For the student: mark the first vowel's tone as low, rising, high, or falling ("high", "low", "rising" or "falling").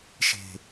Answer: low